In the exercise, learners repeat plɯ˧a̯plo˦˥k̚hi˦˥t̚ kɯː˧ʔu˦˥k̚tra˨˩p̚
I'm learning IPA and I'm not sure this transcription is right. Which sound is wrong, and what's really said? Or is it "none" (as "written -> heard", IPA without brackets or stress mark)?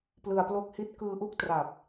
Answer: none